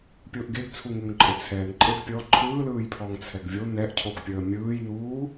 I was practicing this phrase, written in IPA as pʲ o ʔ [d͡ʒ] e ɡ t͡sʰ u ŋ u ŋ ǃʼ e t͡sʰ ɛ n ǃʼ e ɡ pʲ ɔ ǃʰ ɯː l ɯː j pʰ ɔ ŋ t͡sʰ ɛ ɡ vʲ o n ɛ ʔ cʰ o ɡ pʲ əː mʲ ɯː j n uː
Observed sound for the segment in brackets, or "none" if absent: ɡ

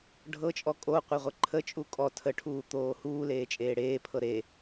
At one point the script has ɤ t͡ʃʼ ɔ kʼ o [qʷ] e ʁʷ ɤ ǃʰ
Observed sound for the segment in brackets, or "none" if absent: qʷ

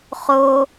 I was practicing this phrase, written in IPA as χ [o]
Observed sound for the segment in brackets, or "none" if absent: o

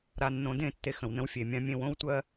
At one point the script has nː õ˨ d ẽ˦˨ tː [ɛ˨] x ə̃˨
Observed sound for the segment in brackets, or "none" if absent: e˨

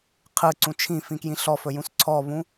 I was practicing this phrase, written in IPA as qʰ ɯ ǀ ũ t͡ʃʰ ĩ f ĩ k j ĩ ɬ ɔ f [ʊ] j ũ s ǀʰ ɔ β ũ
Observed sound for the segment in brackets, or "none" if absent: ɵ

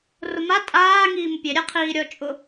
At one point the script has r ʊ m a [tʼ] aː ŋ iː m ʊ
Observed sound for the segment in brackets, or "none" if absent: tʼ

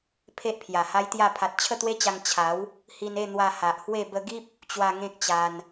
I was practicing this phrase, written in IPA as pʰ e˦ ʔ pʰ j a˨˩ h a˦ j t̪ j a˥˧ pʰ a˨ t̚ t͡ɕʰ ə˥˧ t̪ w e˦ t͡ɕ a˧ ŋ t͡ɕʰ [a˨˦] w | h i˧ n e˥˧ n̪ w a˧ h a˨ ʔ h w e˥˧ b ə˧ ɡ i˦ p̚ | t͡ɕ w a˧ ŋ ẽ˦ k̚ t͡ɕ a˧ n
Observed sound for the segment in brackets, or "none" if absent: a˨˦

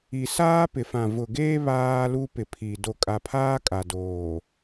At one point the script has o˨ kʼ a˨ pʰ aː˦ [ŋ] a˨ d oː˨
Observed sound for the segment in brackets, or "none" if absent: kʼ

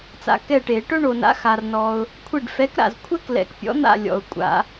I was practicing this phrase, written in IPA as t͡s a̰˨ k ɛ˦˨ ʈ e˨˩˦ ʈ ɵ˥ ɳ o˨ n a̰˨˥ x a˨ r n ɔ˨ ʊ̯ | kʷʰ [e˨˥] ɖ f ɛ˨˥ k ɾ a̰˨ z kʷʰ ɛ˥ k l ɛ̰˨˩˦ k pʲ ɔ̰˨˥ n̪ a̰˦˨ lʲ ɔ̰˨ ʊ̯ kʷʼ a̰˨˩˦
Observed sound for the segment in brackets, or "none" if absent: e˦˨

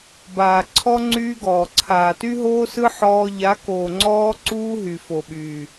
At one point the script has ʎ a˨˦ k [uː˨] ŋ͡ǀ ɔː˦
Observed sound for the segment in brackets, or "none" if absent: oː˨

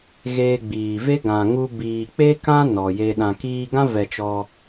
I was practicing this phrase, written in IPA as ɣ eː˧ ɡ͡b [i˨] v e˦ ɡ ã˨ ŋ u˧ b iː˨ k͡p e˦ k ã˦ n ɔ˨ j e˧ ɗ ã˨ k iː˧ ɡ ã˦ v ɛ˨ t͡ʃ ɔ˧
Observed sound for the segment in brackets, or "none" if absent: iː˨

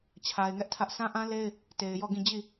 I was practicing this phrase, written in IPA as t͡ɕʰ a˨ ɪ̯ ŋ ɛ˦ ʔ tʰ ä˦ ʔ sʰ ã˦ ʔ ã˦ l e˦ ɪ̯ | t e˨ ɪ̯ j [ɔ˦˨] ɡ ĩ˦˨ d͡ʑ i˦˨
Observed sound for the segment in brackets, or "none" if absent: ɔ˦˨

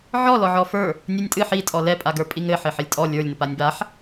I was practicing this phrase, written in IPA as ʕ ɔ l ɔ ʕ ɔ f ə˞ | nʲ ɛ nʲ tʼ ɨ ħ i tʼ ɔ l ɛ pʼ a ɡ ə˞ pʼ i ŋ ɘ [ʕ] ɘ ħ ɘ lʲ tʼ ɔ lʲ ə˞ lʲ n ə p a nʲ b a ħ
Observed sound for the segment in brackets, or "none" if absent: ħ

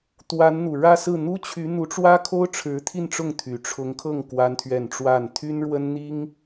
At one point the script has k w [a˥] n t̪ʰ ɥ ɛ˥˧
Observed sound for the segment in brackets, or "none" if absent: a˥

